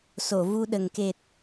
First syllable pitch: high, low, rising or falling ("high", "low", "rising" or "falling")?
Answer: low